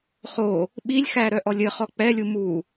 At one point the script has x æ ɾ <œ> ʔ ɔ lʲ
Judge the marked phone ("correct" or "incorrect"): correct